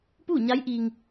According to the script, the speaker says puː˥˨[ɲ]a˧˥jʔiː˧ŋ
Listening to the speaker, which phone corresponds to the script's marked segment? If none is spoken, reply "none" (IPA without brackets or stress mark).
ɲ